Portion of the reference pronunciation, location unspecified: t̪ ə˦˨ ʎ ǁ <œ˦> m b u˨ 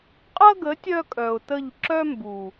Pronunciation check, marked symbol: correct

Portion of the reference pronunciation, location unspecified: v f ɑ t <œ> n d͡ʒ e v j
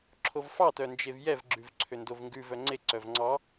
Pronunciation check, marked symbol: correct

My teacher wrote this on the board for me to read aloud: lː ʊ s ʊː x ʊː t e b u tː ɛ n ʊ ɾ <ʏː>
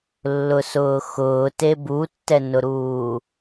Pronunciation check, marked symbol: incorrect: uː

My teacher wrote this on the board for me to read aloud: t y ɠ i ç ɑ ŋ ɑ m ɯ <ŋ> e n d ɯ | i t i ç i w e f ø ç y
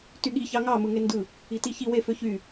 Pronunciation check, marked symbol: correct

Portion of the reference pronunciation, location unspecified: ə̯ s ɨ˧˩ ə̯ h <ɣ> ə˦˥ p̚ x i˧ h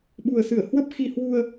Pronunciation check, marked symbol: incorrect: w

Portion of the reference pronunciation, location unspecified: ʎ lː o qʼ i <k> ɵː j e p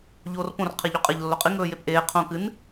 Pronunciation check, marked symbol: incorrect: ŋ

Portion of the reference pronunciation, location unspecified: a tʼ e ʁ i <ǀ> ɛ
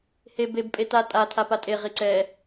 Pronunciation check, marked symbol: correct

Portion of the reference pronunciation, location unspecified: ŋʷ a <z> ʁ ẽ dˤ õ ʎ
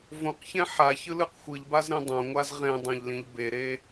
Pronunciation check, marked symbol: correct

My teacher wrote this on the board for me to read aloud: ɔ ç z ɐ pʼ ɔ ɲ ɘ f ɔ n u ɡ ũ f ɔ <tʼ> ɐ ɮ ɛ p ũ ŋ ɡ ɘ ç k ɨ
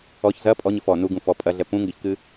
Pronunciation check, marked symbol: incorrect: pʼ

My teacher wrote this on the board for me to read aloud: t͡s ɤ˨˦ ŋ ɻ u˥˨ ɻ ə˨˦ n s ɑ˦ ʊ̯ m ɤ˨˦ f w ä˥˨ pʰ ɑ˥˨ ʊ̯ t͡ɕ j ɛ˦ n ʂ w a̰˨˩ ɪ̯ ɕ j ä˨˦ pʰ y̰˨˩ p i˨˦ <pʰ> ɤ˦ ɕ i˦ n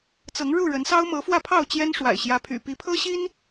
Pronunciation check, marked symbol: correct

